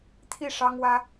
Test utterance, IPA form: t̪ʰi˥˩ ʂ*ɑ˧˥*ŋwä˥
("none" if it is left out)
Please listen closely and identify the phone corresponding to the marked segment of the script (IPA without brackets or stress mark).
ɑ˥